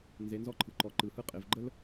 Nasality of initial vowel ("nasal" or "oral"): oral